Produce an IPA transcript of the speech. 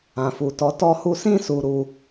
ã˨ f u˨ t ɔ˨˦ t ɔ˧ h u˧ s ĩ˦ s u˧ ɾ u˧

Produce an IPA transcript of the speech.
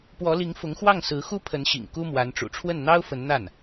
p w ɔ˧˥ l i˧˥ ŋ f ʊ˧˥ ŋ x w ɑ˥˩ ŋ s ɹ̩˧˥ x u˥ pʰ ə˧˥ n ɕ ḭ˨˩ ŋ k u˥ m w a˧˥ n ʈ͡ʂ ṵ˨˩ ʈ͡ʂʰ w ə˥˩ n n̪ ɑ˥ ʊ̯ f ə˧˥ n n̪ a˥˩ n

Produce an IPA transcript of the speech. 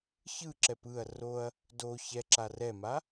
ç ɯ ǁ ɛ p ɯ ɐ̯ r o ɐ̯ | d o ç ɛ ǁ a r ɛ m a

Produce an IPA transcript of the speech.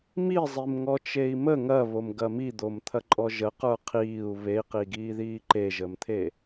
m i zˤ i m ŋ ɔ t͡ʃ e i̯ m ə ŋ ɐ β o m ɡ ɐ m i d̪ o m t̪ʰ ɐ ǃʼ ɔ ʒ ə q ə˞ qʰ iː u̯ β e i̯ q i ɡ iː ð iː ǃ e ʒ əː m t̪ʰ e

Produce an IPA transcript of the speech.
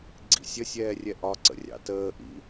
ɡ͡ǀ ḭ sʲ ə sʲ ɛː rʲ ɛ ʔ ɒ ǀ ə̰ rʲ ɑ̰ t əː ʔ ḭ

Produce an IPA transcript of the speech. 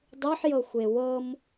dˤ ʉ ħ j ɤ xʷ e w ɤ m

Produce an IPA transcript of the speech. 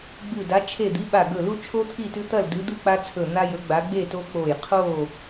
ɡ͡b ɨ˧˩ d a˨˦ t͡ʃʰ e˧˩ d̪ i˨˦ ɓ a˧˩ ɡ ɵ˧˩ l u˦ t͡ʃʰ o˦ t̪ʰ i˥˨ t ʉ˦ t̪ ɐ˥˨ l d ɨ˨˦ d̪ ɨ˥˨ k͡p a˦ t͡sʰ ɵ˧˩ n̪ a˦ j ɵ˨˦ ɡ͡b a˨˦ ɡ͡b e˥˨ t o˦ k͡p o˧˩ j qʰ o˥˨

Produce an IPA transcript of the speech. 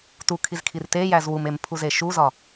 t u kʰ i z kʰ i r t e j æ z w u m e m pʰ u z e ʃ u z ɒ

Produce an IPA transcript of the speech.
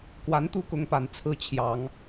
k w a˧˥ n t̪ u˥˩ k ʊ˧˥ ŋ p a˨˩ n t͡sʰ ɹ̩˥˩ t͡ɕʰ j ɑ˨˩˦ ŋ

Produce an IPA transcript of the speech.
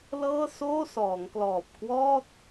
l ɤː˥˩ s oː˥˩ s ɔː˩˦ ŋ k l ɔː˨˩ p̚ k w ɔː˥˩ t̚

